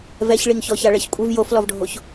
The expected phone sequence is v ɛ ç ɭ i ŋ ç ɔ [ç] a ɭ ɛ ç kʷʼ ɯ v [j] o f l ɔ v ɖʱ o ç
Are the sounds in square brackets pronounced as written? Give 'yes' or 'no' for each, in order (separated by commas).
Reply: yes, yes